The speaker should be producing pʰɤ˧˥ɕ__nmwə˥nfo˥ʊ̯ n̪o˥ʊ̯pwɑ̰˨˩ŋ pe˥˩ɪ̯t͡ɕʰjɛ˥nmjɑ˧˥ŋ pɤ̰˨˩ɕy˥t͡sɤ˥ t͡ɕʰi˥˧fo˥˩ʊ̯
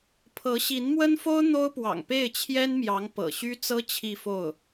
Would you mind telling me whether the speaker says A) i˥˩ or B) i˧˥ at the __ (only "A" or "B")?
B